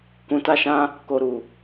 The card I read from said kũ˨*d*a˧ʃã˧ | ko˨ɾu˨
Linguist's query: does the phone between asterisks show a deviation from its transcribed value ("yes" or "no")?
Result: yes